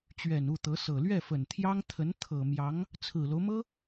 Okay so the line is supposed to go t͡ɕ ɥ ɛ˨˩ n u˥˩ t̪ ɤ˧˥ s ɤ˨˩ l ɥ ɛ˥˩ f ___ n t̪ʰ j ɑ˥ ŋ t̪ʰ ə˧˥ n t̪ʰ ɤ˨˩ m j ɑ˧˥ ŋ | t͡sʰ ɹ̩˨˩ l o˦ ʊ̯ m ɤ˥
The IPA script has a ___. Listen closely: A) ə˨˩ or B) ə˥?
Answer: A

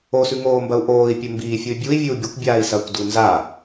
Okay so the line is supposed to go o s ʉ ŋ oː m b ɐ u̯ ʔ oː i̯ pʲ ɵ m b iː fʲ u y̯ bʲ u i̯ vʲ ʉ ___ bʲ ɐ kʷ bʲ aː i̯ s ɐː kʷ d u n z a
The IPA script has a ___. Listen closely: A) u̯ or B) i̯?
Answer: A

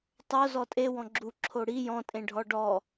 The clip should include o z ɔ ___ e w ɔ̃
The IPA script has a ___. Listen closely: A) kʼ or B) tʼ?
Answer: B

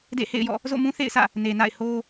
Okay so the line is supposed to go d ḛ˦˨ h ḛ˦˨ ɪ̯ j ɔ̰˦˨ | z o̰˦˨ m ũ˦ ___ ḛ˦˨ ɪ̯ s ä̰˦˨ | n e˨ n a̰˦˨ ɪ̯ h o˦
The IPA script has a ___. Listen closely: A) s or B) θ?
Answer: B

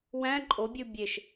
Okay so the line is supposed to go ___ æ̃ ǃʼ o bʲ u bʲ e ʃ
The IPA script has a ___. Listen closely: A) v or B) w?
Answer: B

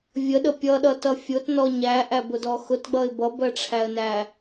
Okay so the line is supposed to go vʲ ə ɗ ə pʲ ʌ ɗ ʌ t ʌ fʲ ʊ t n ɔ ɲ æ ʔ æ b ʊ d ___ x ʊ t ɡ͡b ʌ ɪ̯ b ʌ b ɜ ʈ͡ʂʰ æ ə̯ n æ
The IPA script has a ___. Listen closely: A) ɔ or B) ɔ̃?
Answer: A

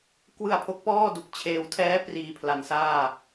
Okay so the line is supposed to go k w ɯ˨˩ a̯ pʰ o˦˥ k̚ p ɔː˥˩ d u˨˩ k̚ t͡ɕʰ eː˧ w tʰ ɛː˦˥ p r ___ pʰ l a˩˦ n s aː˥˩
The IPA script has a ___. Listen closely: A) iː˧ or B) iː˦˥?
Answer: A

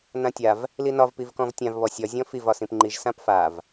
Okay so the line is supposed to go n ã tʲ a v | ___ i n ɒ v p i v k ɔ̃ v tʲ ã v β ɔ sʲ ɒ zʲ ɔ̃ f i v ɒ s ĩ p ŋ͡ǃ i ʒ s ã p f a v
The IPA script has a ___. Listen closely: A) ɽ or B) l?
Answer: B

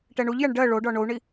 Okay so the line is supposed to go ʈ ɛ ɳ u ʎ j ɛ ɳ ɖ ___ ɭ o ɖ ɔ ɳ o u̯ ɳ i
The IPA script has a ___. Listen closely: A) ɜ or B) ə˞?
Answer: A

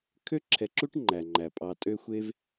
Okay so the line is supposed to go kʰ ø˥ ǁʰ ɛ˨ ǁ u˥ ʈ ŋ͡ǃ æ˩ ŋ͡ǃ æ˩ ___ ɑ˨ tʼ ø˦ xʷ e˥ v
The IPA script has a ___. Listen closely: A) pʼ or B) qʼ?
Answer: A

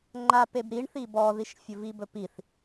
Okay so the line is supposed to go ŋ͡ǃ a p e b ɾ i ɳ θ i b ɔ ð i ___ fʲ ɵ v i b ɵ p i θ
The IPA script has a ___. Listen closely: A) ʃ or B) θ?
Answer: A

